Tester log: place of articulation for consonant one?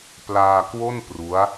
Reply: labial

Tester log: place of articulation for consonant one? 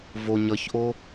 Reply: labial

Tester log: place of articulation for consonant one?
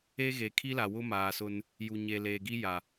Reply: velar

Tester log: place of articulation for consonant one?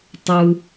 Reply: alveolar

